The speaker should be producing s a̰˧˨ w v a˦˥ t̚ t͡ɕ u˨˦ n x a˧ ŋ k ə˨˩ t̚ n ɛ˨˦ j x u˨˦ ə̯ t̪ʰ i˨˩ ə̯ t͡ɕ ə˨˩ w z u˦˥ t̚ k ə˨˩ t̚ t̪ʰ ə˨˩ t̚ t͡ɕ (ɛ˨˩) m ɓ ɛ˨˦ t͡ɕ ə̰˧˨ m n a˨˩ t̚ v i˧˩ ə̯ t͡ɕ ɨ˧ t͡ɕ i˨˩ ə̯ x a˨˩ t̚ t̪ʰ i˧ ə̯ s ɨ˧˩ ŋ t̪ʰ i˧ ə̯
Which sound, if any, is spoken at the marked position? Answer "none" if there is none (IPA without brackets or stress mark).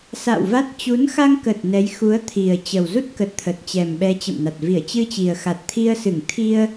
ɛ˨˩